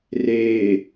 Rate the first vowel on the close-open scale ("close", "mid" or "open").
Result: mid